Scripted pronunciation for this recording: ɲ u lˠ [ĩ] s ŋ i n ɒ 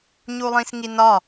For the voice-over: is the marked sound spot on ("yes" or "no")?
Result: yes